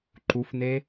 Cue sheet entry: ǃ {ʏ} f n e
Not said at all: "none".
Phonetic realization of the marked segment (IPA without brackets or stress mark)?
u